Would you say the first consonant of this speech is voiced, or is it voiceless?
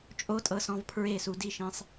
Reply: voiceless